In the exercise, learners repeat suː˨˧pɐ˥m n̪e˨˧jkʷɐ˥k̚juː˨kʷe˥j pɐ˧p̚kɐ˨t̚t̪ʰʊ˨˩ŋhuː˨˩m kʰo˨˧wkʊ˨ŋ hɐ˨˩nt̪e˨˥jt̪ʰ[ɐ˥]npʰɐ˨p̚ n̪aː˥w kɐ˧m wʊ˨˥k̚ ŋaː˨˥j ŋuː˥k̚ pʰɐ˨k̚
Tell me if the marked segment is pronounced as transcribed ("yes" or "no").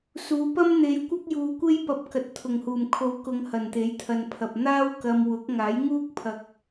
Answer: no